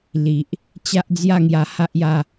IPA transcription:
l i˨ ʔ | t͡ɕ a˦ ʔ d͡z j a˥˧ ŋ j a˧ h a˦ ʔ j a˧

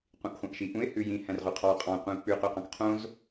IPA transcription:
qʷ ĩ ʔ χʷ ɑ̃ ʔ ʃ i ʔ ũ ɪ̯ h ʉ j ĩ h æ̃ r ʁ y qʰ ɑ qʼ ɑ̃ qʷ ĩ ʊ̯ k͡p ʉ q y q ɑ̃ k qʰ õ z

